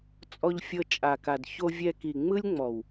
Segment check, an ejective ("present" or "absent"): present